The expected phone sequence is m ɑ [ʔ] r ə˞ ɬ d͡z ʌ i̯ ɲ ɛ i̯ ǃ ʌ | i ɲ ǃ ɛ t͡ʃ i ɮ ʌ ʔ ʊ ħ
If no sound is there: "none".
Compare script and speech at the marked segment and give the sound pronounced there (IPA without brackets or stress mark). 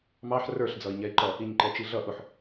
ħ